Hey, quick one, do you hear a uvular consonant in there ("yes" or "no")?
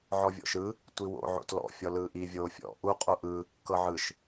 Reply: yes